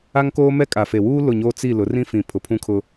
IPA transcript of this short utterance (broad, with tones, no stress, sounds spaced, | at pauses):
a˦ ŋ k oː˦ m ɛ˦ kʼ a˨ f e˨ w uː˦ l ʊ˦˨ ɲ oː˦ t͡s i˦˨ l ʊ˨˦ r ĩ˦ f ĩ˨ pʰ ʊ˨ pʰ ũ˦ kʰ ʊ˦